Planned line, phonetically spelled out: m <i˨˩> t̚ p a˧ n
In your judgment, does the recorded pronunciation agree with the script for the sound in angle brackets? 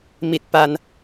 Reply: yes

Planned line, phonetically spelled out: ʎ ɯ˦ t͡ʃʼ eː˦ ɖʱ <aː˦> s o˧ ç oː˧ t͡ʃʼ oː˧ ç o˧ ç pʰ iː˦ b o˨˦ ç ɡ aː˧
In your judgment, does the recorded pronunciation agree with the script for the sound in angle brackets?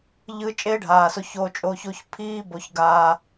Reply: no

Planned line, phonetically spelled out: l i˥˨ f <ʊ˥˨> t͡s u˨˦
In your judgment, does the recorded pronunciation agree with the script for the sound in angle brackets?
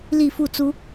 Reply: no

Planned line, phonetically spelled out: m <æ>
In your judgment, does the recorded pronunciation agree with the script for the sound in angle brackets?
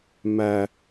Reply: yes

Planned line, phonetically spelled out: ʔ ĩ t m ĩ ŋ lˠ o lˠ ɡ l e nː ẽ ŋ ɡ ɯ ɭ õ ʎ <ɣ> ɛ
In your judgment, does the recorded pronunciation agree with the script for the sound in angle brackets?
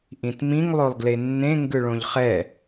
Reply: no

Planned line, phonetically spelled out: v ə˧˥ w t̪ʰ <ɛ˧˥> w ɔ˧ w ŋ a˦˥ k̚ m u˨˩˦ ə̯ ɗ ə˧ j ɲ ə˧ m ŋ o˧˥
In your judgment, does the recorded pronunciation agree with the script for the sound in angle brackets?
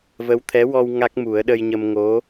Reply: yes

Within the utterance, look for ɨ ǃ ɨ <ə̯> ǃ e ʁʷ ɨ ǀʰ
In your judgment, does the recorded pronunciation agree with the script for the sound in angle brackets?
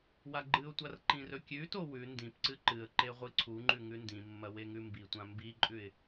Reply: yes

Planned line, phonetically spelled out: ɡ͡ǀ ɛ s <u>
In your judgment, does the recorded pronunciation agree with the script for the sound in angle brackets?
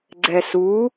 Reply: yes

